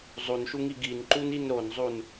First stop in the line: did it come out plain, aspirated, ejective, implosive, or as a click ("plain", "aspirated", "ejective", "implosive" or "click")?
plain